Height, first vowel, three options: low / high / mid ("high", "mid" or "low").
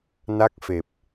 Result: low